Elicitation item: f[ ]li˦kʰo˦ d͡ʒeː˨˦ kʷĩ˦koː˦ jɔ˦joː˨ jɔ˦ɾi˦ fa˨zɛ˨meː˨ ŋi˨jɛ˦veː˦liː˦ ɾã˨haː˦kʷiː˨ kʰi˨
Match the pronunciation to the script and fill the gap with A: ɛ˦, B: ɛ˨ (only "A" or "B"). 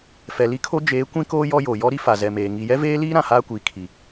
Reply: B